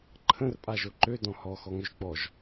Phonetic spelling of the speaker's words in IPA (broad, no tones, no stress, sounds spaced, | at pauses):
ǃʰ ə̃ r pʼ a ʒ o ǃ ø d ɔ̃ h ɔ x ɔ ŋ ɵ ʒ ɡ͡b ɔ ʒ